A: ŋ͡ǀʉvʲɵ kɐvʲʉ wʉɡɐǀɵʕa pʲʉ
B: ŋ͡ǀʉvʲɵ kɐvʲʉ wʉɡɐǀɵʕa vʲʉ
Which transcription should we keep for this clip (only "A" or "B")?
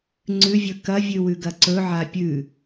A